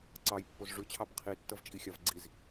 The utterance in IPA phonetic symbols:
ǀɑjpːoz ʐʉt͡ɕʰɑb qʰitːʌvt͡ʃʼixʲav ɡ͡ǀiz

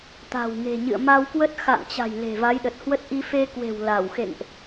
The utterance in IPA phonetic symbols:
t̪a̤˨˩wŋe̤˨˩ɲɨ̰˧˨ə̯ ma˧wkwə˦˥t̚ xa̰˧˨ŋt͡ɕa̤˨˩j le̤˨˩va˨˦jɗə˨˩t̚hwə˦˥t̚ ʔi˧fe˧kwe̤˨˩w la˧˩w xḛ˧˨ŋʔ

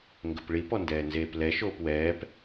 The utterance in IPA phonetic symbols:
ŋɡəpɭip ɔndɛːnzeːplɛ ʃoːpwɛːp

